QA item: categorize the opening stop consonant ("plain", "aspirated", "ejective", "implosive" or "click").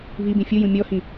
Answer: plain